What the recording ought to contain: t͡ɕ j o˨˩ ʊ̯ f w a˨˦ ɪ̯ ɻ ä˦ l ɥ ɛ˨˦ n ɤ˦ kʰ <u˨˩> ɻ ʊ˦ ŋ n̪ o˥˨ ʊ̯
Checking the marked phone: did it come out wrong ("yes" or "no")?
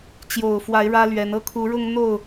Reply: yes